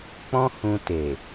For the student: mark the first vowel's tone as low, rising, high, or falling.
high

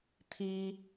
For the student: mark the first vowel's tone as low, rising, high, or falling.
high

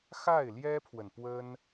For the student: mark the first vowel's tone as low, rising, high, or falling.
falling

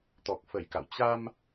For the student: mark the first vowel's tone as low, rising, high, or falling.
low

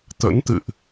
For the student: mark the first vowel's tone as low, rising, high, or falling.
rising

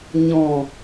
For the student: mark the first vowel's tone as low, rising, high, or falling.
low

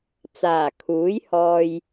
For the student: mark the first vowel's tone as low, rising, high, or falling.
low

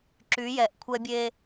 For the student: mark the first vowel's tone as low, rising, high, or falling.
rising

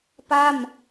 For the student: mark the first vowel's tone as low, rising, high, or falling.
falling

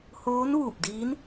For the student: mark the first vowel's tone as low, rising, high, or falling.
rising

